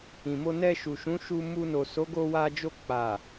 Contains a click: no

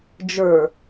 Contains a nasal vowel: no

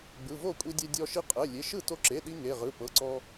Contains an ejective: yes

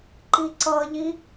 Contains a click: yes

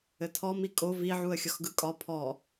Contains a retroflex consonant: no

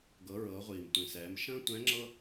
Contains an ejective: no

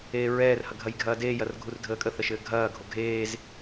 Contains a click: no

